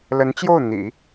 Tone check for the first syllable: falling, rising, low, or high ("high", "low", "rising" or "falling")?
rising